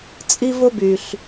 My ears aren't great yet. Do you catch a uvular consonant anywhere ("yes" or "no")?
no